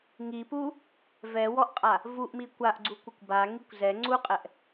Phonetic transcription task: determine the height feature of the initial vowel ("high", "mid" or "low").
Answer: high